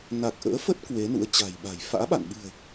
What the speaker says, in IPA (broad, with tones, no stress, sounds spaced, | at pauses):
n a˨˩ k̚ ʔ ə̰ː˧˥ f ə˦˥ t̚ k w e˨˦ n ṵ˧˥ ə̯ t͡ɕ a̤˨˩ j ɓ a̤˨˩ j f a̰ː˧˥ ɓ a̰˧˨ n ɓ ɨ̤˨˩ ə̯